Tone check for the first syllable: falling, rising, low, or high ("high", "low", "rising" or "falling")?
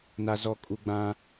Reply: low